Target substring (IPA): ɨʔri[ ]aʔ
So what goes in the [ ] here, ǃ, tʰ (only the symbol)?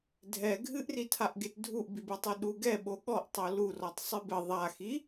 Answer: tʰ